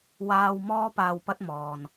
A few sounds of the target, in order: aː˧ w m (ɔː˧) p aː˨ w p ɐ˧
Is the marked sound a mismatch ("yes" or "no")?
no